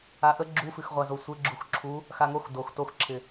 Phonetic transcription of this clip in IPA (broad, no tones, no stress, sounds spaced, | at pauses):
a ʔ ə ɡ͡ǁ u f ɨ x ʁʷ a z o sʷ ɪ ɡ͡ǁ u x ǁʰ u | x a ŋ o x d o x t o x ǁʰ ɪ